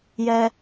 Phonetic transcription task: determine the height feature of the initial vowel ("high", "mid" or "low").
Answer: mid